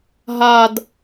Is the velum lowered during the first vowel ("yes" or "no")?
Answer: no